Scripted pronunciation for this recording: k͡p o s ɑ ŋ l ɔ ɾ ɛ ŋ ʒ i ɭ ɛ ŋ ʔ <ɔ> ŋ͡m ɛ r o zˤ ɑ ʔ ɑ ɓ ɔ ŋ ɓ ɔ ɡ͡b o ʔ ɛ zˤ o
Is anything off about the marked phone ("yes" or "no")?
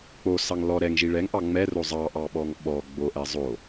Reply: yes